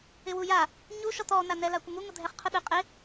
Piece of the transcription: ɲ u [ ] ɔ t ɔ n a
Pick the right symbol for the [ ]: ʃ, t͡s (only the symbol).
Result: ʃ